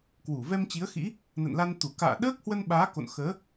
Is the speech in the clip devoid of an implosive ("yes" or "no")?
no